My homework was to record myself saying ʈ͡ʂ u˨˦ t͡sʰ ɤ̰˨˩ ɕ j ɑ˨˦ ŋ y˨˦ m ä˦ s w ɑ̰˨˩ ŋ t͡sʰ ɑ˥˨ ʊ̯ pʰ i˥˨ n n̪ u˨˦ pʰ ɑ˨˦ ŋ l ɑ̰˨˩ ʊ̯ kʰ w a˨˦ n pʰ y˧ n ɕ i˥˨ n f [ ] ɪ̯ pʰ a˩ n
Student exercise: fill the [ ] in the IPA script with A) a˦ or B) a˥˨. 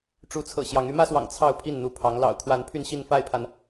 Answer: B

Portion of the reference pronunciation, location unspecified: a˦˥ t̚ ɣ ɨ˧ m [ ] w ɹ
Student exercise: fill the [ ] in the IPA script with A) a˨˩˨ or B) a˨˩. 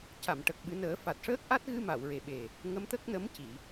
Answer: A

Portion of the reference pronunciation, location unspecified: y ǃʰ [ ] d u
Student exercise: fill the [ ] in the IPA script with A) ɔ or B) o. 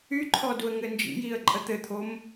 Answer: A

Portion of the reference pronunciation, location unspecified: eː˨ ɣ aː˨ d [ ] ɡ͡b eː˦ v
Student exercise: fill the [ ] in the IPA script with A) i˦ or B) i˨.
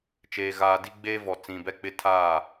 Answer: A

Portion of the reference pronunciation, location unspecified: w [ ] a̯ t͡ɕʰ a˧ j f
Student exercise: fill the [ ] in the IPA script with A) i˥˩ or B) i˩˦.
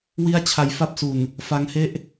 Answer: A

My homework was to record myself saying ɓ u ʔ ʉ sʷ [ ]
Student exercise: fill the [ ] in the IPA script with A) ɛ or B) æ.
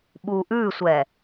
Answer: A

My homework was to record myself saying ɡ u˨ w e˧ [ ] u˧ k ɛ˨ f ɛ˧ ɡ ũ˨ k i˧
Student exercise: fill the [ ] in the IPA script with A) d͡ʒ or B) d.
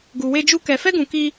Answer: A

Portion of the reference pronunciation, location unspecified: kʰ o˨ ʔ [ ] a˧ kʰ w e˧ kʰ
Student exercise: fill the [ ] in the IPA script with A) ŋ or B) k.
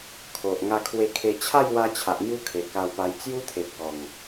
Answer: A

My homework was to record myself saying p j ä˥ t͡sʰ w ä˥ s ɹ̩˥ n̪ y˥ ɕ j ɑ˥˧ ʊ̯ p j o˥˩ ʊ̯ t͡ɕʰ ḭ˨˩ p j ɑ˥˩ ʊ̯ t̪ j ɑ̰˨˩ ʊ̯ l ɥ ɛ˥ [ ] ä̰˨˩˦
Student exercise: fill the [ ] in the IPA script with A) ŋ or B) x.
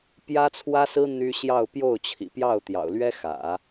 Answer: B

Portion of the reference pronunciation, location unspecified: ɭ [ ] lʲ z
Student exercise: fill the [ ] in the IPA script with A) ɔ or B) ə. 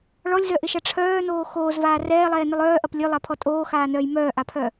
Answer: A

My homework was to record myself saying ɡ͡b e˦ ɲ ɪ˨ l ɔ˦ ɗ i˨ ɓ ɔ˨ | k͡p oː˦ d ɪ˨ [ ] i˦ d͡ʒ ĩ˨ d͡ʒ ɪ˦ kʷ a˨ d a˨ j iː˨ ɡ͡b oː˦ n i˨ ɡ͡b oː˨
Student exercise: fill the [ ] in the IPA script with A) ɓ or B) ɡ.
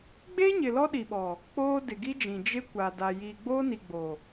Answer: B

